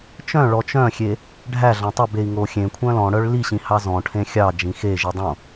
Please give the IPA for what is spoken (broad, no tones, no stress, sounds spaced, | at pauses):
t͡ʃ œ̃ ɭ ɔ t͡ʃ œ̃ xʲ e | ɖʱ æ ɮ ɑ̃ tˤ ø b e i̯ ŋ o xʲ ẽ kʷʰ œ̃ l ɔ̃ ɽ œ ɭ l i ɕ ĩ h ɑ z ɔ̃ ʈʰ ẽ xʲ ɑ d͡ʒ ĩ x e ʒ i dˤ õ